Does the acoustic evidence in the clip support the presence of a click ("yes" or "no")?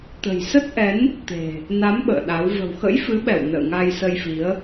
no